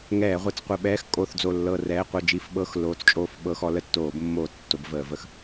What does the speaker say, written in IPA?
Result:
ŋ ɛː˧˩˧ ʁʷ e˨˦ t͡s qʷ ə˧˩˧ ɓ ɛː˧˥˧ x kʼ o˦˨ θ d͡z o˦˨ lː ɤ˦˨ r ɛː˧˥˧ qʷ ɤ˦˨ d͡ʒ i˧˩˧ f ɓ ɤ˧˥˧ x l oː˨˦ t͡s t͡ʃʼ oː˦˨ f ɓ ɤ˧˥˧ x ɔ˨˦ l ə˦˨ tː oː˧˩˧ b mː oː˧˩˧ t͡s tː o˨˦ b v əː˧˩˧ v ə˦˨ x

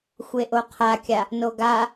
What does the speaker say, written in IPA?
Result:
xʷ e ʔ o qʰ a kʲ a | n o ɡ a

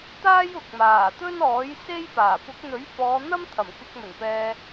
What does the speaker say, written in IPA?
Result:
t̪ aː˥ j ʊ˨ k̚ m aː˨˩ t̪ ɵ˥ n ɔː˨˥ j s e˥ j p aː˨˩ p ʊ˨˥ k̚ n̪ ɵ˨˥ ɥ f ɔː˨˧ n̪ ɐ˥ m t̪ʰ ɐ˨˩ m k ɪ˧ k̚ m ɵ˨˩ n p ɛː˧

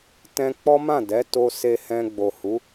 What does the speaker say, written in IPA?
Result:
t ɛ̃˧ k͡p ɔ˦ m ã˦˨ d ɛ˨˦ t o˦ s e˧ h ɛ̃˧ ɡ͡b o˨ h u˨˦

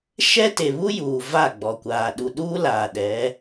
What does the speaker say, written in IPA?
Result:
ʃ ɛ˦ t e˨ β u˦ j uː˨ v a˦˨ ɡ͡b ɔ˨ kʷ aː˨ ɗ u˨ ɗ uː˦ l aː˨ ɗ ɛ˨˦

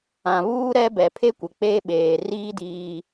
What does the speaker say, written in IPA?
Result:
ã˨ β uː˦ ɾ ɛ˦ b ɛ˨ pʰ e˦ kʷ ɪ˨ k͡p e˦ ɓ eː˨ r iː˦ d iː˦

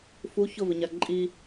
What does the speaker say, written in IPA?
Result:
f u ç ʊ v ɪ ɲ a ǃʼ i

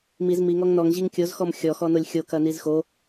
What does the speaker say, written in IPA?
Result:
m i z m i ŋ ɔ ŋ n ɔ ŋ ʑ i ŋ kʲ o z x ɔ m xʲ ɔ x ɔ n o lʲ xʲ o k ɐ n i z x o

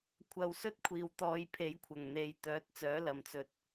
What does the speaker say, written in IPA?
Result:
kʷʰ ɐ˨˧ w s ɵ˥ t̚ kʷʰ iː˨ w t̪ ɔː˧ j pʰ e˨˥ j kʷʰ ɐ˨˩ ŋ n̪ e˨˧ j t̪ œː˨˥ t̚ t͡s œː˨˥ l ɐ˨ m t͡s ɵ˧ t̚

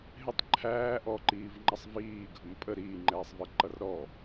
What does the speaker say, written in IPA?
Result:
ɦ ɪ tˤ ǃʰ æː ʔ ɔ ǃ iː v ŋ͡ǃ ʌ sˤ v iː ɡʱ ʊ m pʼ ə ɾ iː ŋ͡ǃ ɛː sˤ v ə ǃ ʌ r ɾ ɔ

